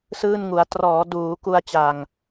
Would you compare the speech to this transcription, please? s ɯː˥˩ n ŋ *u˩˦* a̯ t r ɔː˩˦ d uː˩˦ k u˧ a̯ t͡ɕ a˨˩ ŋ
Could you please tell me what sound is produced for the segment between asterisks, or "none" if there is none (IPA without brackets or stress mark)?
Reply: u˩˦